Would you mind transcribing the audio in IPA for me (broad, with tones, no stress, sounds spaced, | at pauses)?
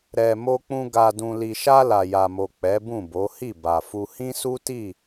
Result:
ɾ ɛ˨ m o˧ k͡p ũ˧ ɡ a˨ d ũ˨ l i˨ ʃ a˧ l a˨ j a˨ m o˨ k͡p ɛ˨˦ b ũ˦˨ b o˨˦ h i˦˨ b a˨ f u˧ h ĩ˦ s u˦ t i˦˨